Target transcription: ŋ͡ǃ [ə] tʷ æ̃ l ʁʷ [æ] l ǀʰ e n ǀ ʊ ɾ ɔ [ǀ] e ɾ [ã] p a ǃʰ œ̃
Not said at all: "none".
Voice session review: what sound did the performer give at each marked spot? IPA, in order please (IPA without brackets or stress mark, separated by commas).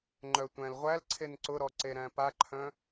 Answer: œ, æ, ǀ, æ̃